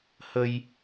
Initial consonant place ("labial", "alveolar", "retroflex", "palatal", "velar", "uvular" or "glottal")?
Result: glottal